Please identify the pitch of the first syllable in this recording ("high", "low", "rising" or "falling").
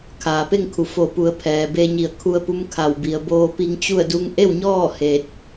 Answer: low